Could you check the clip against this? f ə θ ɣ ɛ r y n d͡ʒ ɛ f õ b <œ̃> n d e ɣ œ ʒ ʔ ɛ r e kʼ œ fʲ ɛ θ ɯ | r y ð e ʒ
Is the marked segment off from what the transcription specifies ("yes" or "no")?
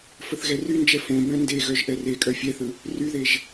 no